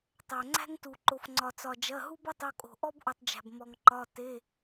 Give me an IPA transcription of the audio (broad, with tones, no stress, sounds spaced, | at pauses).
tˤ æ˩ ŋ͡ǀ æ̤˥ ŋ t u˩ ǃ o˩ f ŋ͡ǀ ɒ˩ t͡s ɒ˩ d͡ʒ ɐ˩˧˩ ɦ u˥ b ɐ˥ tˤ o˩˧˩ kʼ o̤˩ ʔ ɔ˥ b ʔ u˩ tˤ d͡ʒ æ̤˩ b m ɔ˩ ŋ ǃ ɒ˩˧˩ t e˩˧˩